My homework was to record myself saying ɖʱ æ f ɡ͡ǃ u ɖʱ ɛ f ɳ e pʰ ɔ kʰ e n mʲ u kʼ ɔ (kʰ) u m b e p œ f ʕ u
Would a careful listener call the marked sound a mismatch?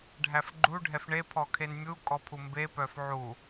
yes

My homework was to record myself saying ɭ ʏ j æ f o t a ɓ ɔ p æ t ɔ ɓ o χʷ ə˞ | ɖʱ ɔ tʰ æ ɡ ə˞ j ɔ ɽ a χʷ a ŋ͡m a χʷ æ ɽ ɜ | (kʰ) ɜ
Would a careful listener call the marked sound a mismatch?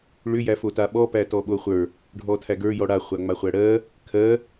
no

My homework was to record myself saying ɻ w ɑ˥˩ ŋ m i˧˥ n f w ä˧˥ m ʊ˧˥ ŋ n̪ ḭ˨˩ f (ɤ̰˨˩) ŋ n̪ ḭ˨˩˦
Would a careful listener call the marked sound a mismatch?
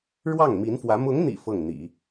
yes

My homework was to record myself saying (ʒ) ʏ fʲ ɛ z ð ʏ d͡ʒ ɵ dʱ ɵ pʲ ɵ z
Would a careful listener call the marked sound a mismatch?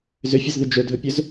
yes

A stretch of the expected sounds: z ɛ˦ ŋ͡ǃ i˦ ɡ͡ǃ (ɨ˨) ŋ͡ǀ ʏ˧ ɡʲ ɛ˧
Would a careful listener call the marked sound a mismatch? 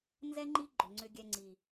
yes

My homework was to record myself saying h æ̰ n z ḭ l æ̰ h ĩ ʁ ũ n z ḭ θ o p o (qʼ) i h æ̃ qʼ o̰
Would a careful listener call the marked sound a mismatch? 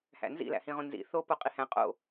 no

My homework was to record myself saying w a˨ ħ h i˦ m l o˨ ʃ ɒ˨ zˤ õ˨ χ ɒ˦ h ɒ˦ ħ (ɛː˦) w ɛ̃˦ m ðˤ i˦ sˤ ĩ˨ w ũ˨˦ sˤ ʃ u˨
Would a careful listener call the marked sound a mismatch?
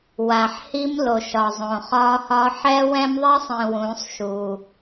yes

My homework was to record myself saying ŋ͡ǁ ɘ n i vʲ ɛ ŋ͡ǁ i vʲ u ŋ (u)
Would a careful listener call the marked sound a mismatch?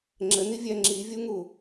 no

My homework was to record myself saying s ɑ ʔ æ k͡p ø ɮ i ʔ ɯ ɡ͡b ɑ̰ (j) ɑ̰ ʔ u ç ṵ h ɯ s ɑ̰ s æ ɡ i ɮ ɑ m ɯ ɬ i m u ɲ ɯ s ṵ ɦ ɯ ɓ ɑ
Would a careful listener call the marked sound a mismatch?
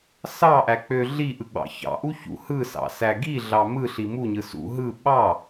yes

